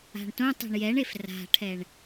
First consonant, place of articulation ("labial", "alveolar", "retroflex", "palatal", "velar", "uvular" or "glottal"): retroflex